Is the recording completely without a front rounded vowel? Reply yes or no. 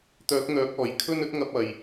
no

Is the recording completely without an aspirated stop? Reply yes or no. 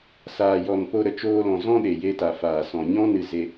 yes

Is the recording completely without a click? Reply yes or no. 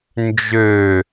yes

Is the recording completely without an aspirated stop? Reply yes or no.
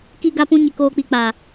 yes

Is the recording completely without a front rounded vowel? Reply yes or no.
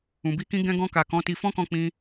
yes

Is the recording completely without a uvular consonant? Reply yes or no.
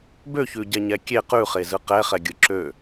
no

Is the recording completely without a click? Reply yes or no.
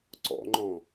no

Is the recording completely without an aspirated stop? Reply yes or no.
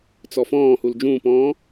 yes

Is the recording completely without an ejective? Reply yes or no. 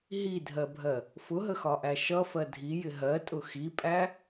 no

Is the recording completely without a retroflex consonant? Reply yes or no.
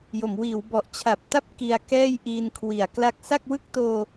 yes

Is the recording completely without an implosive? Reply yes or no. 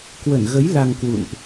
yes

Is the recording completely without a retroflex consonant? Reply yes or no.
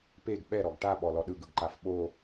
no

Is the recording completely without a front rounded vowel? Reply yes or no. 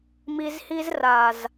yes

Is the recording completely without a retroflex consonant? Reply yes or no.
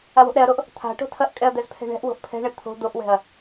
no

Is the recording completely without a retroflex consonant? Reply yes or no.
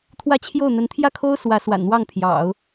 yes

